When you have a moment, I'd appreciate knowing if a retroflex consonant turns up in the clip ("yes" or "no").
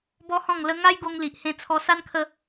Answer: no